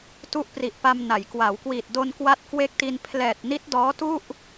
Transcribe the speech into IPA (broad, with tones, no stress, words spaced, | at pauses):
tu˥˩ʔpri˨˩ʔpa˧m na˩˦j kwa˩˦wkwiː˨˩t̚do˧n kwa˦˥t̚kwe˦˥k̚ti˧n pʰlɛː˨˩t̚ni˦˥t̚ dɔː˦˥tu˥˩ʔ